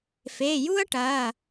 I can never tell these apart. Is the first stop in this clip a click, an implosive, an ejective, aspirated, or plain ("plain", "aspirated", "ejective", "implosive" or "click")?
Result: plain